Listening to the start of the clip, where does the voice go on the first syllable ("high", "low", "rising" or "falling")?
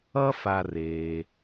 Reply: high